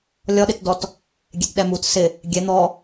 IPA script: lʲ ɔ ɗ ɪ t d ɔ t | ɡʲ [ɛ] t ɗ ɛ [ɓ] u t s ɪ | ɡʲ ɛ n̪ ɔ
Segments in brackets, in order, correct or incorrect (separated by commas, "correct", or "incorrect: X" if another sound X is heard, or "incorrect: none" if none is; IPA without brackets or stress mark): correct, incorrect: m